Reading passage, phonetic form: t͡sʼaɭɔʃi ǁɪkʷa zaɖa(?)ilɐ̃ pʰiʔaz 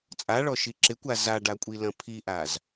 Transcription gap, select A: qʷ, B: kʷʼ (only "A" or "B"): B